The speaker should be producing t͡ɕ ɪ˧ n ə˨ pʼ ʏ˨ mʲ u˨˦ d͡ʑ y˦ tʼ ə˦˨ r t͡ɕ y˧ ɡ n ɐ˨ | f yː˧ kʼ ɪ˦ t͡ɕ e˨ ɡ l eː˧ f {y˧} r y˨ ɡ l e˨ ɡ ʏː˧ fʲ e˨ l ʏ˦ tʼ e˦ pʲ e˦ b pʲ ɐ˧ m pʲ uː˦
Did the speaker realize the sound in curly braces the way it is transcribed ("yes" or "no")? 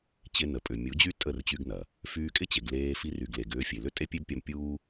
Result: no